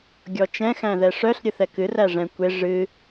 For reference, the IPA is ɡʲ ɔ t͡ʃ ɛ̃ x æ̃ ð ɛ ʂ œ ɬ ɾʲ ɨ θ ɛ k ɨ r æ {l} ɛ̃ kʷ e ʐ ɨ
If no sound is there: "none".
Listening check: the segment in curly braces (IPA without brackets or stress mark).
ʐ